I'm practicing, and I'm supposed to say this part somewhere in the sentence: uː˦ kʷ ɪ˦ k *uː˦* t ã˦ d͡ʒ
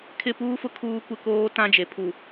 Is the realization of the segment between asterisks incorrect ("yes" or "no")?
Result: yes